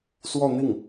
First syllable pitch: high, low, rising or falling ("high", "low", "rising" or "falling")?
falling